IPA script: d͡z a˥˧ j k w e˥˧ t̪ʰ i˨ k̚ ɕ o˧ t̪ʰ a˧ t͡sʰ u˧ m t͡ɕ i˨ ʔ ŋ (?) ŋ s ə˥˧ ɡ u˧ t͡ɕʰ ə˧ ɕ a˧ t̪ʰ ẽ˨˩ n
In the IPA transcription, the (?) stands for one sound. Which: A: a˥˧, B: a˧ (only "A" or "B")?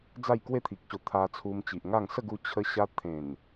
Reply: A